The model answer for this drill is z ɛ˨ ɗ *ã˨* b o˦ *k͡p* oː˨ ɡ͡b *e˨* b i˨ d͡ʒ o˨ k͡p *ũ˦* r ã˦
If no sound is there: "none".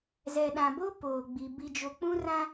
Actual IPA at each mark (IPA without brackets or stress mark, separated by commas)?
ã˨, p, i˨, ũ˦